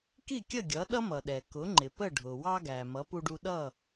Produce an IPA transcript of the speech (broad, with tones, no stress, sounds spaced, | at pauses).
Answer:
k i˥˩ kʲ ə˥˩ ɡʲ ʌ˩˥ ɗ ʌ˥ m ʌ˩ ɗ ɛ˩ k ʊ˩˥ ŋ͡ǃ ɪ˩ p ə˥˩ ɖʱ ʊ˩ w ɑ˧ ɡ æ˩ m ʌ˩˥ p u˧ ɖ u˧ ɗ ʌ˥˩